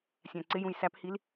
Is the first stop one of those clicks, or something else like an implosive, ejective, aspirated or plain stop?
click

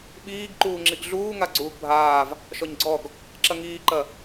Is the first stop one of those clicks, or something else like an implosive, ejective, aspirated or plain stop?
implosive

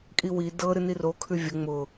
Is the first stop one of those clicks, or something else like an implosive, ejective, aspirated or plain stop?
ejective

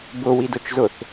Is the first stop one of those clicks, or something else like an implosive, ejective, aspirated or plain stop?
plain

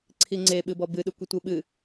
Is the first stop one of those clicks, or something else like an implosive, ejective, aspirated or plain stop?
click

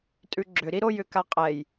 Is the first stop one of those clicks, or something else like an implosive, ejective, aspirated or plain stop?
ejective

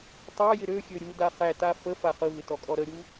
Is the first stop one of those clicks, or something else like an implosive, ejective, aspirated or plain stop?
plain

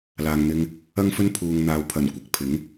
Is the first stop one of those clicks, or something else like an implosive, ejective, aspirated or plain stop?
aspirated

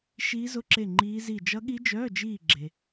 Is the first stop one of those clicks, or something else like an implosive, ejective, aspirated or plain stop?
click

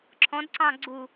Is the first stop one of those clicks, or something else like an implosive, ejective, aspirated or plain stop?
click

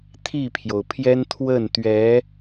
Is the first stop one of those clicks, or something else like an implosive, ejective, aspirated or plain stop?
aspirated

